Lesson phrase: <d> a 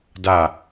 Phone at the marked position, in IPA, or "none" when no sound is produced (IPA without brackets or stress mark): d